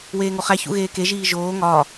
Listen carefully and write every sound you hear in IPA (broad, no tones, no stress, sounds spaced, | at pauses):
w eː ŋ o χ æ ç ṵ ɣ eː k e ʒ iː ʒ oː ŋ ɒː